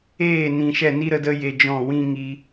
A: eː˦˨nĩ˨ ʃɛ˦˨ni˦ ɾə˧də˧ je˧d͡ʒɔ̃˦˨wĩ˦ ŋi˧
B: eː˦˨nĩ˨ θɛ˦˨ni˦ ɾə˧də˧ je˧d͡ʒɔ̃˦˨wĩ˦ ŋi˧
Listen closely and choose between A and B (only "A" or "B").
A